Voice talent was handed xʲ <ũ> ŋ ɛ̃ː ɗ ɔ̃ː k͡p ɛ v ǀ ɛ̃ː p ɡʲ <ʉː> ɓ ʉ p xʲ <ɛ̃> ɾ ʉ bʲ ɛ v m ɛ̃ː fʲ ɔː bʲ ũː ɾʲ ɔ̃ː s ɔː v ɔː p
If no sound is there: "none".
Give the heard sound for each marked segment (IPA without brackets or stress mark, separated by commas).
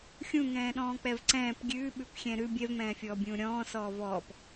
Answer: ũ, ʉː, ɛ̃